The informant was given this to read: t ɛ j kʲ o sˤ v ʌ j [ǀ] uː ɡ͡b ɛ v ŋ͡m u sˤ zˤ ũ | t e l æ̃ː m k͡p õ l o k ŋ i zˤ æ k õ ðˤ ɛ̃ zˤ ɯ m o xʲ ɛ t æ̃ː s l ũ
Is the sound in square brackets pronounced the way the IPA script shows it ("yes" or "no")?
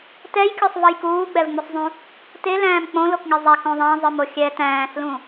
no